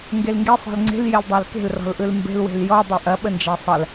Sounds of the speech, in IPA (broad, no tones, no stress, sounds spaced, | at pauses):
ŋ ɡ e l ŋ ɡ e sˤ e̤ l ŋ͡ǀ e̤ l j e l dˤ æ l k e̤ l r ɔ̤ l ʔ ɯ l m b e̤ l w e̤ l j ɔ dˤ ø ʔ ɐ ɓ ə n d͡ʒ æ sˤ ɐ l